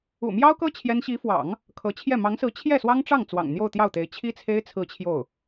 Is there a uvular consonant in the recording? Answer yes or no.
no